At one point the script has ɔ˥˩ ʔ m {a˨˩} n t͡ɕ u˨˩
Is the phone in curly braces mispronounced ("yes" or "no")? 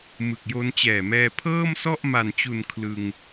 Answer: no